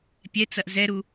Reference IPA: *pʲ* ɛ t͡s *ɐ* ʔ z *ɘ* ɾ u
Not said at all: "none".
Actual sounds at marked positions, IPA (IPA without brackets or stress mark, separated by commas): pʲ, ɐ, ɛ